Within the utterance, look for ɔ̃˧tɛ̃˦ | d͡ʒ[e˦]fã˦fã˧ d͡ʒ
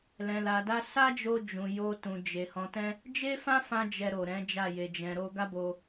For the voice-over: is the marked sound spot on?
yes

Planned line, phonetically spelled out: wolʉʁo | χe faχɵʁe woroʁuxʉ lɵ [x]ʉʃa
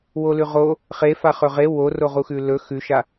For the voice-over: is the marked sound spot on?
yes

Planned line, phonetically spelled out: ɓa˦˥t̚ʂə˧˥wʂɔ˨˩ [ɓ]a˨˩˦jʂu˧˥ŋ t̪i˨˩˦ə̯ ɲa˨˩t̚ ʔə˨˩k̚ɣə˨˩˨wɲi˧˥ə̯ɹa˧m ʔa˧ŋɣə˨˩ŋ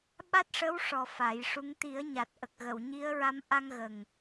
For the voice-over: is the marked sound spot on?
no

